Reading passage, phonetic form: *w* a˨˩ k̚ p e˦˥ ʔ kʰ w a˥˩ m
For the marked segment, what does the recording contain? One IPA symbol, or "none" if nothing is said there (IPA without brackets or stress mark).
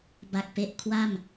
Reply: b